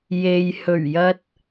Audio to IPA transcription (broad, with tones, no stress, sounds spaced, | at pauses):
j e˨ j h ɵ˨˩ ɥ j ɐ˧ t̚